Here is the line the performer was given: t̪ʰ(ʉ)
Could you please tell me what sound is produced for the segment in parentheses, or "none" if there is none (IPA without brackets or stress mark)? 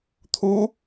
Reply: u